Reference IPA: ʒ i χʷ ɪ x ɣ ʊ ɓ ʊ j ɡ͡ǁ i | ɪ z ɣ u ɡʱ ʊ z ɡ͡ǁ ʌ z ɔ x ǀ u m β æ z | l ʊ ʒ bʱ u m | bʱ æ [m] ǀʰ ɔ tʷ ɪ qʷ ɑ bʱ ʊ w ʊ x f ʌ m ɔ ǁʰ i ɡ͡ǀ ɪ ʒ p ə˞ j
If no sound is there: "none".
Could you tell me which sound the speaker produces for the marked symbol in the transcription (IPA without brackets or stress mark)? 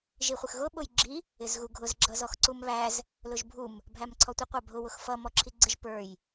m